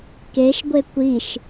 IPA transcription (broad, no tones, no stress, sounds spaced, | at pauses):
k e ʃ ɡʷ e kʷ i ʃ